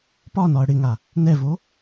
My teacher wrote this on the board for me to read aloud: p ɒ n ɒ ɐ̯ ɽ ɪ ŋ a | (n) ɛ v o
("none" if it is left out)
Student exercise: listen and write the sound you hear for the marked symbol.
n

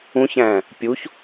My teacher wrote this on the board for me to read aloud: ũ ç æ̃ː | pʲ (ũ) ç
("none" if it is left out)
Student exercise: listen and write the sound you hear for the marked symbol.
u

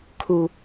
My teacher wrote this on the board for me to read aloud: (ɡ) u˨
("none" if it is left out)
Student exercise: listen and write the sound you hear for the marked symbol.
kʰ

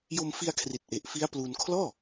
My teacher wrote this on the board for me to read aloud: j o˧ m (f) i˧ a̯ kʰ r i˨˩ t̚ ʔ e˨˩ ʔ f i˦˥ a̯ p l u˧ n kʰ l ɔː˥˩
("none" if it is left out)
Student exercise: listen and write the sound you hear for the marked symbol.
f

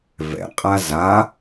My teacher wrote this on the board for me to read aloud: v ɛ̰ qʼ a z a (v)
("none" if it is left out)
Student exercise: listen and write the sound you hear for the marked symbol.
none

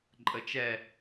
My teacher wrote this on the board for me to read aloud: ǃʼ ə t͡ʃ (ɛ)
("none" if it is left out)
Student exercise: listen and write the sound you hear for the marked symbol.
ɛ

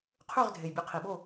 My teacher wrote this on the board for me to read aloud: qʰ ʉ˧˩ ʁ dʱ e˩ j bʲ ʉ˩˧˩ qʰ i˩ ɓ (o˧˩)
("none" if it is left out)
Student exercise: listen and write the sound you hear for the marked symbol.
o˧˩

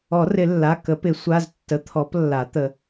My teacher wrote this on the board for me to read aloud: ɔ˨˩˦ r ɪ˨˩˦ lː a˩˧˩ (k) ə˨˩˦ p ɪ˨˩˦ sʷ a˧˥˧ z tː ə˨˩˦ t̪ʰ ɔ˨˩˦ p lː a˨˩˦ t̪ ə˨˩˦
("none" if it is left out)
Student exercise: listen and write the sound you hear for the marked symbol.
k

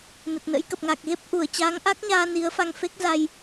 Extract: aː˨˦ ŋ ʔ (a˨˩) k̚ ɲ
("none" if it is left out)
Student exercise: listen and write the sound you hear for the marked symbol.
a˦˥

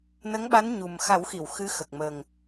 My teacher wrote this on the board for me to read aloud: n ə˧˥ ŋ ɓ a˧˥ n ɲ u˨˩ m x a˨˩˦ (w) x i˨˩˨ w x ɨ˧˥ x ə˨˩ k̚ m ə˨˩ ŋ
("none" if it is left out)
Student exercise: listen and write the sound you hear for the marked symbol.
w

